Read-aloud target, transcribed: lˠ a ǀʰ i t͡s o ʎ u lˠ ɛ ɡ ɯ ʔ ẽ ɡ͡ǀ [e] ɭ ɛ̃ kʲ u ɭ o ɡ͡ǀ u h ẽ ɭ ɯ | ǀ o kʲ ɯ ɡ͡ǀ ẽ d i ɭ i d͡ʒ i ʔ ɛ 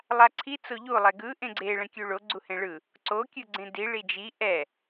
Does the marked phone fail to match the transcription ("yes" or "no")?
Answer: no